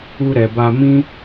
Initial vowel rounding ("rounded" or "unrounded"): rounded